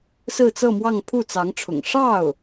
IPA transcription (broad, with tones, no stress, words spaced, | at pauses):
sɹ̩˥˧t͡sɤ˥˧mwɑ˥˧ŋ pʰu˥˩t͡sɑ˧˥ŋʈ͡ʂʰʊ̰˨˩ŋ ʂɑ˥˩ʊ̯